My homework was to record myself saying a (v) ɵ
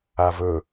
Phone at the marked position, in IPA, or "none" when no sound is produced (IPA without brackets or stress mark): v